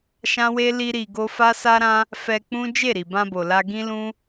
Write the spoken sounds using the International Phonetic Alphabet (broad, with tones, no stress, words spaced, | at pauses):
ʃã˦we˦ li˦ɾi˧ɡo˦ fa˦sa˦ɾã˦ | fɛ˧k͡pũ˦ d͡ʒe˦˨ɾi˨bã˧bo˨ la˧ɡĩ˦lũ˦